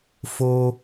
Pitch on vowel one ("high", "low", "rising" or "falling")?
low